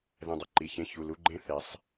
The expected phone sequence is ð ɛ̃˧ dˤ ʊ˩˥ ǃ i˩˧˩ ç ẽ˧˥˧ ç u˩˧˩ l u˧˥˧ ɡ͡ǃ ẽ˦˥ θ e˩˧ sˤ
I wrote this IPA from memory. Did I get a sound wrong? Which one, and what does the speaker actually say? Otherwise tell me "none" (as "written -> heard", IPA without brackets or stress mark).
none